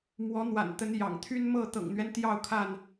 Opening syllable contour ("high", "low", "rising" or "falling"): rising